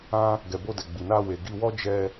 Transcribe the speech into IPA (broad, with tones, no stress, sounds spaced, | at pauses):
ã˦ | ɡ ɛ˨ b o˧ d ɛ˨ ɡ͡b i˨ n a˧ w e˨ ɡ i˧ w ɔ˦ d͡ʒ ɛ˧